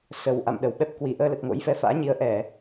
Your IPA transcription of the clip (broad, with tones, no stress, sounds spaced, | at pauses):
s ə˨˩ w ʔ a̰˧˨ m ɗ ə˨˩ w ɓ ɛ˦˥ p̚ k w i˨˩ ʔ əː˧ l ə˨˩ t̚ ŋ o̰˧˥ j f ɛ˨˦ f a̰ː˧˥ ɲ i˨˦ ə̯ ʔ ɛ˧˩˨